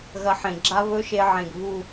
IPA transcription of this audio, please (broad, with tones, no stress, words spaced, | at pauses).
ɣɐ˧ħẽ˨ɡ͡ǁa˦ βɵ˦ʃe˧ʕẽ˨ɡ βu˦˨